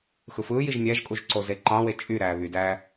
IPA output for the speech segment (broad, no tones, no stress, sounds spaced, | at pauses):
x ɯ f ɯː j i ʒ mʲ æ ʒ kʼ u ʒ ǀ o z e ǃ ɑ̃ w e t͡ʃʼ y ɾ æː β y d æː